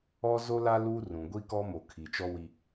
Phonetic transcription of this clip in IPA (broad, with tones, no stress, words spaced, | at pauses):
ɔ˦zo˦la˦ lu˦rũ˨ ɡʷi˦kɔ˦mo˨ kʰi˨t͡ʃɔ˦wi˦